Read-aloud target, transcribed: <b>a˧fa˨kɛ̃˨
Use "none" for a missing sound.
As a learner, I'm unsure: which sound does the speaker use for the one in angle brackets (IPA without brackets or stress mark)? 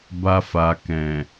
b